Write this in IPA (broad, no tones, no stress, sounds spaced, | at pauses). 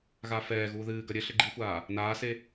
ɣ a f ɛː ɣ uː ð ɨː ɡ ɐ ɾʲ ɘ ɬ ɘ ɡ͡ǃ i xʷ aː | n aː s e